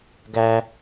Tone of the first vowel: high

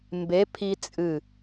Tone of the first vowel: rising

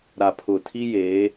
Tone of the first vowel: low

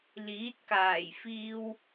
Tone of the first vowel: rising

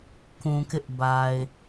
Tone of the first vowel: low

